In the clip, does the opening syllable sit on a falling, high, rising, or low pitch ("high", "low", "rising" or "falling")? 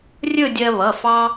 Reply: falling